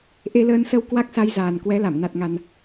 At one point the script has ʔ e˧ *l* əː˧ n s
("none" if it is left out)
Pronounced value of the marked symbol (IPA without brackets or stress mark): l